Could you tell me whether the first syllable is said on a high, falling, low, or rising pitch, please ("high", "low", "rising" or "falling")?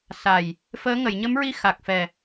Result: low